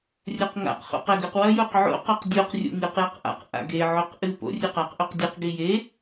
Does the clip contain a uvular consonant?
yes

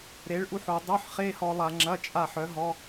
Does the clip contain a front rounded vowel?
yes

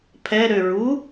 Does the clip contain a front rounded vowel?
yes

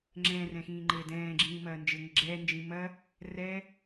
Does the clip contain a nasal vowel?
yes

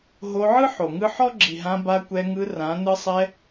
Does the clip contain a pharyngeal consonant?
yes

